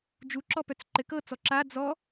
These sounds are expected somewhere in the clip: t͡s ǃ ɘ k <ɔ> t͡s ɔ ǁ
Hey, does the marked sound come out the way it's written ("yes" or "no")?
no